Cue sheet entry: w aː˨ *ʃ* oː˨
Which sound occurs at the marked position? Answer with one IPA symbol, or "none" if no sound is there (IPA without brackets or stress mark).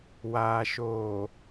ʃ